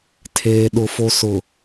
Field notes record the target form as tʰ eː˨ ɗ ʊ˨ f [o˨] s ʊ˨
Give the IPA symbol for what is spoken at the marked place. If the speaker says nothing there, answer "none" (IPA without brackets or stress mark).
o˨